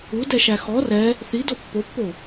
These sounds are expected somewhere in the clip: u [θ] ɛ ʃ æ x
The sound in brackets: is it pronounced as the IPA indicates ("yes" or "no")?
no